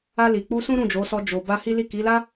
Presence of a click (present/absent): absent